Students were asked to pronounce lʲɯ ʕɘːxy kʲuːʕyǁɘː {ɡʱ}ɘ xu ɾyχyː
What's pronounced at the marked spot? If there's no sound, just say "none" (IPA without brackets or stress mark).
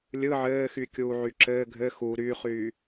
ɡʱ